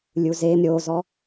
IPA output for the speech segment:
lʲ u z e m ɾʲ o z ɔ

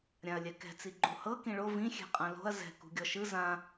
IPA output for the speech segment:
ɾʲ ã ɐ̯ lʲ ɛ k ɛ̤ t͡s i ɡ͡ǃ u h ɤ k ĩ ɭ o v ĩ xʲ ɛ̤ qʼ ã l o̤ ɐ̯ z ɛ̤ k ṳ ɡʲ ɔ ʃ ɯ z ã

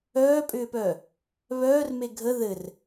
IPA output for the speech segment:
œː pʼ ʏː p œː | β œː r m e ɡʱ ə ð ɘ r

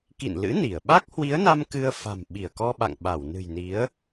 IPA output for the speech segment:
k ḭ˧˨ n l ɨ̰˧˥ n i˧˩ ə̯ ɓ a˦˥ k̚ h w i˨˦ ə̯ n a˧ m k ɨ˧ ə̯ f a̤˨˩ m ɓ i˧˩ ə̯ k ɔ˧ ɓ a̰˧˨ ŋ ɓ a˧˩ w n ɨ̤˨˩ j n i˨˦ ə̯

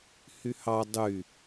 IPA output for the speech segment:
h y h ɑ dˤ y

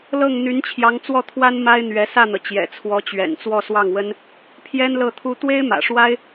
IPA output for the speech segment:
l ɤ˥˩ ŋ n̪ y˧˥ n t͡ɕʰ j ɑ˧˥ ŋ t͡s w ɔ˥˩ t̪ʰ w a˥ n m a˥ ɪ̯ n̪ ɥ ɛ˧˥ s ä˥˩ n̪ ɤ˩ t͡ɕ j ɛ̰˨˩ t͡sʰ w ɔ˧˥ t͡ɕ ɥ ɛ̰˨˩ n t͡s w ɔ˥˧ s w ɑ˥˩ ŋ w ə˥ n | pʰ j ɛ˥ n l ɤ˥˩ t̪ʰ u˥ t̪ w e˥ ɪ̯ m ä̰˨˩ ʂ w a˥ ɪ̯

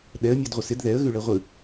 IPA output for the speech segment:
ɗ ɛ ə̯ mʲ ɔ d ʁʷ ə s ɪ d ð ɛ ə̯ ɣ ʉ ɭ ɛ ʁʷ ɯ

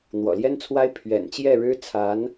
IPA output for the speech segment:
n̪ w ɔ̰˨˩ l j ɛ˥ n t͡sʰ w a˥ ɪ̯ pʰ ɥ ɛ̰˨˩ n t͡ɕ j ɛ˥˩ ɻ ɻ̩˥ t͡sʰ a˧˥ n

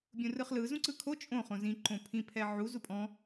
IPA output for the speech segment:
bʲ ũ r ɯ χ l ɯ z ũ ǀ ɯ kʰ o t͡ʃʼ õ χ õ z ĩ ǃ õ pʰ ĩ pʰ ɛ ʕ u z u pʼ ɔ̃

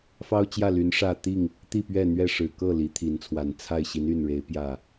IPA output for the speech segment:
f ɑ˦ ʊ̯ t͡ɕ j ä˥˨ l y˨˦ n ʂ ä˥˨ t̪ i˥˨ ŋ | t̪ i˥˨ p ɥ ɛ˥˨ n̪ ɥ ɛ˥˨ ʂ ɻ̩˨˩ k ɤ˥˨ l i˨˦ t̪ʰ i˨˦ n t͡sʰ w a˨˩ n t͡sʰ a˥˨ ɪ̯ ɕ i˨˦ n y˨˩ n ɻ e˨˦ ɪ̯ p j ä˥˨

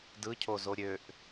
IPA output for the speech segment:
d ɯ cʰ o z o ɾʲ ø ʔ

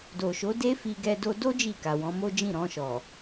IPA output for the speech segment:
d o˨ ʃ o˨˦ d e˦ f i˧ ɡ ɛ˧ d o˧ d o˦ d͡ʒ i˦˨ k a˨ w ɔ̃˨˦ m o˦ d͡ʒ ĩ˦˨ ɾ ɔ̃˧ ʃ ɔ˨

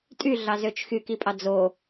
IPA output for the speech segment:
tʼ y ɮ ɑ z ø t͡ʃ x y k i pʼ ɑ d͡z o

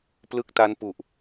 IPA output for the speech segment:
p l ɯ˦˥ k̚ t a˦˥ n p u˨˩ ʔ

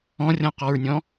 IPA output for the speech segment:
ɔ̃ rʲ ɔ̃ q ɔ ɹ nʲ ɔ̃

